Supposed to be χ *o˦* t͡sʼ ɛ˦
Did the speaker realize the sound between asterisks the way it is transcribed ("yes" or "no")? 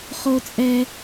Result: yes